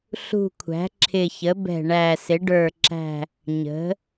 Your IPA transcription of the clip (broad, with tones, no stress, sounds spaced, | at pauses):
ɬ ṳ˨˩ kʷʰ æ̤˩˧ ǁʰ ɪ˨˩ ç ə˩˧ b ɛ̤˨˩ ɳ æ˨˩ s ɪ˩˧ ɖ ə˞˨˩ ǁ æ̤˨˩ | ɲ ə̤˩˧